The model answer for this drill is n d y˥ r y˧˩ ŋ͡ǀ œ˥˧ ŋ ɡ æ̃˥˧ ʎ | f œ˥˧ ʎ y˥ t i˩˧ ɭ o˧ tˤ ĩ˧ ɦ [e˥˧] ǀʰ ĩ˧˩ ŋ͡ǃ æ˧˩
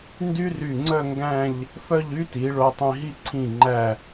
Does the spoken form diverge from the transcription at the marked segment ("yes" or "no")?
yes